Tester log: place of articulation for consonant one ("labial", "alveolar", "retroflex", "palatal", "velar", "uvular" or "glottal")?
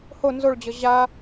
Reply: glottal